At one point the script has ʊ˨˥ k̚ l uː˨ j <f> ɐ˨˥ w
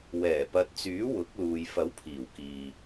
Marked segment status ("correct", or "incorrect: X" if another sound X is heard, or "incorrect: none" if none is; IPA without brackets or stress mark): correct